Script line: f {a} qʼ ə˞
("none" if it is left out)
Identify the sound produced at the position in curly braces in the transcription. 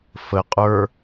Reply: ə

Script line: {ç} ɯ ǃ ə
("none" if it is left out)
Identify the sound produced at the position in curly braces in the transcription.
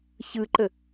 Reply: ç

